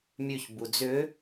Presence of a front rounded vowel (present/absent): present